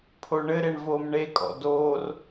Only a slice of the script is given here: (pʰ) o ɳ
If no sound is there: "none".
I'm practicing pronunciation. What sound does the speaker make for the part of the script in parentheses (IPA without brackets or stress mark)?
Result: pʰ